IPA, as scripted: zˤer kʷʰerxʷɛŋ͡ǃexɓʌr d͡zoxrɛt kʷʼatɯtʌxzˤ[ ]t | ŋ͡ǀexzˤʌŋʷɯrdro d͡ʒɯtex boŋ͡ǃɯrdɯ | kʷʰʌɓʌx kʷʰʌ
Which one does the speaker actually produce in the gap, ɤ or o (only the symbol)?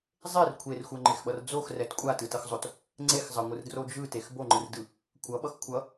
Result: o